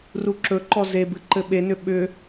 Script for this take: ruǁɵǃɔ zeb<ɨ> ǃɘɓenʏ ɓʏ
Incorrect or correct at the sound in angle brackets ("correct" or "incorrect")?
correct